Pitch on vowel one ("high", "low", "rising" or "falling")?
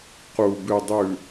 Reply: low